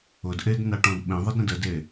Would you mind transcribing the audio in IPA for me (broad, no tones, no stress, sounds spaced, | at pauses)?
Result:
ʊ d ʔ e d n a ʈ ɔ̃ d ɓ ẽ ðˤ ə d ɾ ə̃ d ə d e